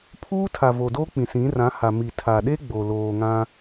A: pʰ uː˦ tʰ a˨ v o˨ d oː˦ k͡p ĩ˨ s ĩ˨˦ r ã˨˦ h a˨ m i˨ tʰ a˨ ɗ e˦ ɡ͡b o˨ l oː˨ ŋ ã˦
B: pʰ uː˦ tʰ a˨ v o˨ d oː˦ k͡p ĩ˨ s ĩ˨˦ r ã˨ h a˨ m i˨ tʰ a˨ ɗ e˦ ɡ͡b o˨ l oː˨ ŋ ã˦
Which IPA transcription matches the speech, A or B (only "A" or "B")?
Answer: A